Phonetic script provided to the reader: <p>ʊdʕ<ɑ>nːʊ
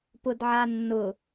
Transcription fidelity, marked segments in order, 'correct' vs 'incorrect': correct, incorrect: a

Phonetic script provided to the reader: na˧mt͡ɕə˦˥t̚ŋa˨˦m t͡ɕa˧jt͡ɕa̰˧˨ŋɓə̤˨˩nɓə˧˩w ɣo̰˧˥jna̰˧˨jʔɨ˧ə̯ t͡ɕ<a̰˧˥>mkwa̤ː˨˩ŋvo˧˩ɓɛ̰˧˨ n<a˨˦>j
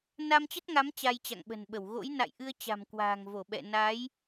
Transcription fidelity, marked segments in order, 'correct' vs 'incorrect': incorrect: a̤˨˩, correct

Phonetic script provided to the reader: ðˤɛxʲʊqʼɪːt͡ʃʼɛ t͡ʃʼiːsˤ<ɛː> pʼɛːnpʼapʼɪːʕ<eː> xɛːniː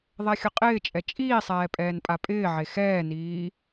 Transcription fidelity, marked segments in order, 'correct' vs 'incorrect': correct, incorrect: e

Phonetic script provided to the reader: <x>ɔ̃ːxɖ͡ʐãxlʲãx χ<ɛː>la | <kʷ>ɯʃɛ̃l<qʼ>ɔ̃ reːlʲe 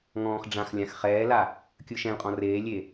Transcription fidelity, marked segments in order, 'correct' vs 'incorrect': incorrect: ŋ, correct, incorrect: kʲ, correct

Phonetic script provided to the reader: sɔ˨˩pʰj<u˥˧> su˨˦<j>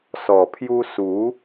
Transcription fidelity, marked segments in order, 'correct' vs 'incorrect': incorrect: u˧, incorrect: none

